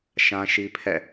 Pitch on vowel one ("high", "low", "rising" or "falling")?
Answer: high